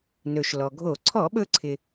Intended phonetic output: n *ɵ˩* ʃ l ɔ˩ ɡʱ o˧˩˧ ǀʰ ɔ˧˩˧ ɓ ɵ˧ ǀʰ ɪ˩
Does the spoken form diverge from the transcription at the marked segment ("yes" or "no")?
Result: no